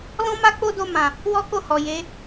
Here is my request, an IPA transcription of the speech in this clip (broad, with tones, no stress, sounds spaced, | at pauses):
l ɔ̃˦ m a˦ k͡p o˦ d o˧ m ã˨ | w ɔ˦ k o˦˨ h ɔ˨ j e˨˦